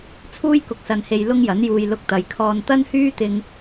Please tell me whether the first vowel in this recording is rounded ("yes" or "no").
yes